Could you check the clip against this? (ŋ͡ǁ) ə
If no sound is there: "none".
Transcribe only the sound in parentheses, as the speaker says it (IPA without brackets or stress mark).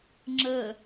ŋ͡ǁ